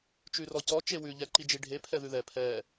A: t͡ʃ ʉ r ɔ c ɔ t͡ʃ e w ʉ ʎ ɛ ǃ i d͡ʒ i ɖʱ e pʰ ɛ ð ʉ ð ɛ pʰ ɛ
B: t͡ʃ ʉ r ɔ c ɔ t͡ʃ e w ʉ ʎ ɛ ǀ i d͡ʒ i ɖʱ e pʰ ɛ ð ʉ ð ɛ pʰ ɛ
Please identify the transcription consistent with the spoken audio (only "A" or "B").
A